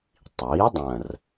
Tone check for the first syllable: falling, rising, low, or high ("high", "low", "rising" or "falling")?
rising